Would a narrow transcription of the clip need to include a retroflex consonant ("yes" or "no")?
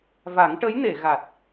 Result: yes